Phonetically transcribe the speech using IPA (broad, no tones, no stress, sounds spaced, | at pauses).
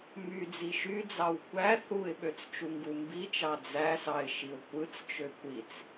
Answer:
m y d͡z i ʃ y d͡z ɑ w kʷ æ θ u ɪ̯ ɓ ø t͡s t͡ʃ u ŋ ɡ u m b i t͡ʃ ɑ d͡z æ s ɑ ɪ̯ ʃ i ʊ̯ kʷ ɯ t͡s t͡ʃ ø kʷ i t͡s